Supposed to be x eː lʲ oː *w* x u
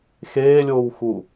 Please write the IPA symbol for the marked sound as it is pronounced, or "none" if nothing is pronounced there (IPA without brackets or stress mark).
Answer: w